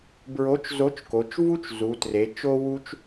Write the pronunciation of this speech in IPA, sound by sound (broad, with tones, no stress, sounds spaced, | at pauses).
b ɹ o˨˥ t͡ʃ z o˨˥ t͡ʃ k o˩˧ t͡ʃ v u˦˥ t͡ʃ z u˩˧ t r e˩˧ t͡ʃ o˧ w u˧ t͡ʃ